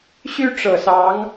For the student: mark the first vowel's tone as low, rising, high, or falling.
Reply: high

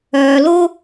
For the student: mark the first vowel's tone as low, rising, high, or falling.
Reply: low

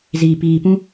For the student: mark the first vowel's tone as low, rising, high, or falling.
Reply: low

